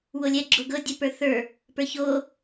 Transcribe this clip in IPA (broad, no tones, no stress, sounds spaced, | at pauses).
w o lʲ ɛ ɡ͡ǁ o ɡ ɤ dʲ ɛ p ə˞ θ ə˞ | p ə˞ ç o